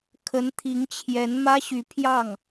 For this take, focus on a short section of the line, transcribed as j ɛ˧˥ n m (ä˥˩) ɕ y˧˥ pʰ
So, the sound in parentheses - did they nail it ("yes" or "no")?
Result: no